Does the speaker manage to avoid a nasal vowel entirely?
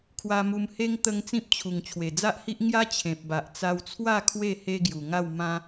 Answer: no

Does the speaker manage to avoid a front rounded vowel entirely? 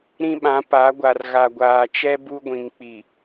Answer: yes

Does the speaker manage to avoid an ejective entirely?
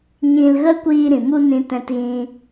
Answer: yes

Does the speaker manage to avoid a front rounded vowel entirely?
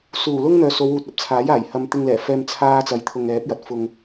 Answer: no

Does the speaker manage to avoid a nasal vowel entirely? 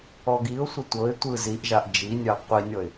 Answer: yes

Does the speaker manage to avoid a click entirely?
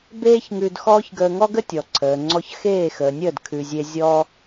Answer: no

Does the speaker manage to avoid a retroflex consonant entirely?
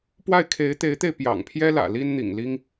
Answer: yes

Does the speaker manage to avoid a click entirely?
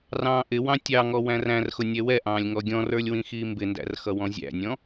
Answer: yes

